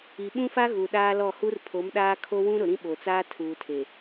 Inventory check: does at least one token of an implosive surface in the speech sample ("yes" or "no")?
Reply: yes